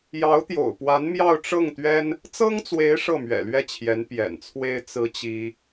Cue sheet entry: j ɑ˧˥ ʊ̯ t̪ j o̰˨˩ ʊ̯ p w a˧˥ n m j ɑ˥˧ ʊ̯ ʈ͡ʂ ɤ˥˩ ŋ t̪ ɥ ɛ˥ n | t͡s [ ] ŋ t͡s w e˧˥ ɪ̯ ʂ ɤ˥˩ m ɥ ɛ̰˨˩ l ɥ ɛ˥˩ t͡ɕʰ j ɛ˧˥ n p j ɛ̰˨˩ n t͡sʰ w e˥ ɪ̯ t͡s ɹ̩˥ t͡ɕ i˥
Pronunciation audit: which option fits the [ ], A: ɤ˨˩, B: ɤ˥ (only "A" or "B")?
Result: B